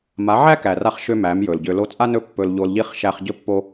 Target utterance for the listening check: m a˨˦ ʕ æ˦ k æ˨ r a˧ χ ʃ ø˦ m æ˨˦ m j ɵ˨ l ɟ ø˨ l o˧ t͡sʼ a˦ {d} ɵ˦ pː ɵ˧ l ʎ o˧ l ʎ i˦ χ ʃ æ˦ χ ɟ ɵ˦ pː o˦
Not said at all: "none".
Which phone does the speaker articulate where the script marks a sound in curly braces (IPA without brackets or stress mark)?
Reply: n